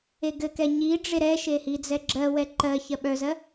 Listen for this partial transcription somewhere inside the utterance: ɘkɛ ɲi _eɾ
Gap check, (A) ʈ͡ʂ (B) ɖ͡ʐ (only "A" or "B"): B